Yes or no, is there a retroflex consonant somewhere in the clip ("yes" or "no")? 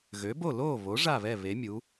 yes